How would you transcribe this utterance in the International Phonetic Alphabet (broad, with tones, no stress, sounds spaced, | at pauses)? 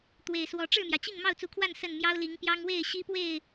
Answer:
t̪ w e˨˩ ɪ̯ s w ɔ˨˦ ʈ͡ʂ ɻ̩˥˨ m j ä˩ t͡ɕ i˥˨ ŋ m ɑ˥˨ ʊ̯ t͡s u˨˦ kʰ w a˥˨ n s ə˥˨ n m j ɑ˦ ʊ̯ l i˨˦ ŋ p j ɑ˦ ŋ w e˥˨ ɪ̯ ɕ i˦ p w e˥˨ ɪ̯